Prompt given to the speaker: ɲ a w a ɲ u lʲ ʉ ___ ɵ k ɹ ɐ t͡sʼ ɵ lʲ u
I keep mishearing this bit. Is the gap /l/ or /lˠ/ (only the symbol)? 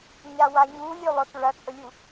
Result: lˠ